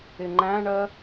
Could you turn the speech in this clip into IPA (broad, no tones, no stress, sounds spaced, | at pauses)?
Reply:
ɪ ŋ͡ǃ æ̃ ɳ ɜ